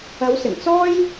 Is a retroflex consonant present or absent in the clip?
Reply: absent